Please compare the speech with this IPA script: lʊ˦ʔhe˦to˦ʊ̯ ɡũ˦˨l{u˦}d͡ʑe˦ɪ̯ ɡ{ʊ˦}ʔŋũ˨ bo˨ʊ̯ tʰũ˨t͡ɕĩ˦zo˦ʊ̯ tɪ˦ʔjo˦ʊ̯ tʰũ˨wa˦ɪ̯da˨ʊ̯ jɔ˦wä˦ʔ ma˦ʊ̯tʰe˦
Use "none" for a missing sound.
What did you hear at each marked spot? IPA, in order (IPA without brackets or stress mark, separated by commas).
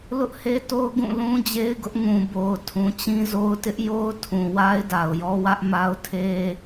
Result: ũ˦, ʊ˦